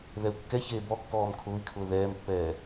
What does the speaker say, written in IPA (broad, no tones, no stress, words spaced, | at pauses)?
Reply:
ðɛu̯kːɛçeː bɔkːɔːm kʰʊːi̯kʰʊː ðɛːmpːɛː